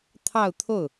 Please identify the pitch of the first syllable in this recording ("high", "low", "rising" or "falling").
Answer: falling